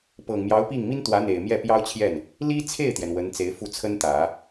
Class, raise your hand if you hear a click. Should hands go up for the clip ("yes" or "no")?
no